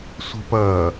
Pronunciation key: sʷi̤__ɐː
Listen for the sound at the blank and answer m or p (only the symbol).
p